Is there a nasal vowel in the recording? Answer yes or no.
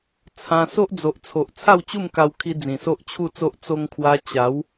yes